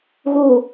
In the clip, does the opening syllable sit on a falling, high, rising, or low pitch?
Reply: low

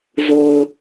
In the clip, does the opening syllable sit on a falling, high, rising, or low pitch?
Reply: low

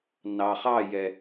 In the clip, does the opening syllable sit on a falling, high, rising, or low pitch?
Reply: low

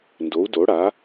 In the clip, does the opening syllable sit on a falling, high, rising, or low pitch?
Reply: rising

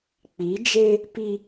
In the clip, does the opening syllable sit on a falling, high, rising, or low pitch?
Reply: rising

